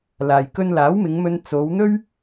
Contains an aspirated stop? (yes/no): no